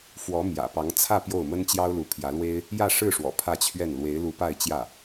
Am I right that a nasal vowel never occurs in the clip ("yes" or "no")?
yes